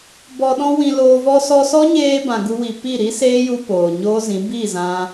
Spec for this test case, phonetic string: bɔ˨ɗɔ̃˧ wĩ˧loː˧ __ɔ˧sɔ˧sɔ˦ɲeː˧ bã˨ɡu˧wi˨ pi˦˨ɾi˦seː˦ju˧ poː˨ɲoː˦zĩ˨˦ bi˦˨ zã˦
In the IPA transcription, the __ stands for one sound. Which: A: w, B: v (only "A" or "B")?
B